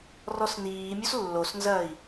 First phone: r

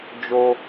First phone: d͡ʒ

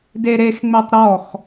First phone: d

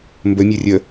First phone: m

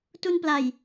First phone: t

